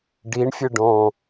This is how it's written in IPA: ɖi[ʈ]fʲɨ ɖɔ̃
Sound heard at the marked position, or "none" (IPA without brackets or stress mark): ɳ